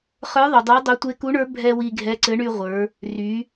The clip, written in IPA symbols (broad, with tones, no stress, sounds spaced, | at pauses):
χ ə˞˧˥ ðˤ u˩ dˤ ə˞˧˥ dˤ œ˧˥ tʷ e˧˥ k u˧˥ ɳ ə˞˧˥ bʱ ɛ˧ w i˧ ɡʱ ɛ˧˥ ǀ ɘ˧˥ ɳ y˧ ʁʷ ə˞˩˧ | r y˩˧